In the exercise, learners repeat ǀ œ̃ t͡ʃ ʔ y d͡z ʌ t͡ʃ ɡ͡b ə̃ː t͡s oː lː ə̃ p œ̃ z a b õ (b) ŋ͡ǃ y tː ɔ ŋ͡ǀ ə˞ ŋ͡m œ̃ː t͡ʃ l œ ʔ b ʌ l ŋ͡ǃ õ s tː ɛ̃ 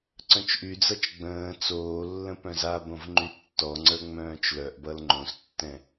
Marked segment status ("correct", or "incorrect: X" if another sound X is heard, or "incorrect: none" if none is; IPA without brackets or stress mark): incorrect: v